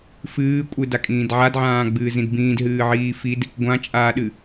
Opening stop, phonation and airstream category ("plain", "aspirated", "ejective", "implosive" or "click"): ejective